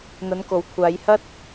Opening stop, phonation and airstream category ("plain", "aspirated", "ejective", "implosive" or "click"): plain